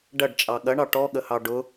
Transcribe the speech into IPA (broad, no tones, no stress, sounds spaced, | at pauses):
ɖ ɐ ɖ t͡ʃʼ ɑ ɠ ɐ ɳ ɑ ʈ ɔ ɠ ə h ɑ ɖ ʊ